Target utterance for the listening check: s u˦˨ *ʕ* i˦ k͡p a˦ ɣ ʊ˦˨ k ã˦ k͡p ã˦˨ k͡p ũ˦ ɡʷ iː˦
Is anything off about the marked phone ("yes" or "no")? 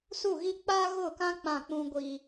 yes